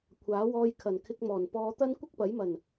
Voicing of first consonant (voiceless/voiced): voiceless